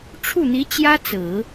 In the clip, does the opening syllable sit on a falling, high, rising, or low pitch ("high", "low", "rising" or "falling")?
falling